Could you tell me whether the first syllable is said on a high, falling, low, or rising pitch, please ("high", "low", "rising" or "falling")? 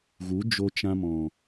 rising